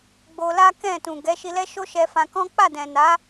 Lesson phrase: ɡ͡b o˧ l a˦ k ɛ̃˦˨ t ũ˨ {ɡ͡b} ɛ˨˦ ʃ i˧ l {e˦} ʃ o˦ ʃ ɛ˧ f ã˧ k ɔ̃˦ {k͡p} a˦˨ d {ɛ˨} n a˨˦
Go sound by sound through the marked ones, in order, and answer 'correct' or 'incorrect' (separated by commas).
incorrect, incorrect, correct, incorrect